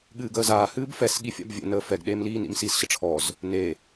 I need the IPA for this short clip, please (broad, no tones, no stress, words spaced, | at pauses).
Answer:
ɠɨːɡəːzaː hɨːbfɛs ɠifʲa̰bvʲɛ̰ nəːfɛɡ ɗeːmliːnḭmsis ɕəʈ͡ʂʰɔz | ne